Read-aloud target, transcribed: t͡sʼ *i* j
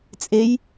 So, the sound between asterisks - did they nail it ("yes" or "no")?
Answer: no